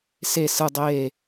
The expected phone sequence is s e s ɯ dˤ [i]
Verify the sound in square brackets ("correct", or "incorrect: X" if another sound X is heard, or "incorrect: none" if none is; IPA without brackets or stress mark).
incorrect: e